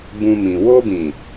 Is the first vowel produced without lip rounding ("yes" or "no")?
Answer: no